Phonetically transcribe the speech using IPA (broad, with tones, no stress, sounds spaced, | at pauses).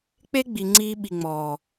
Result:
k͡p e˦ ɡ͡b i˨ ŋ͡ǀ iː˧ ɓ i˨ ŋ͡m ɔː˨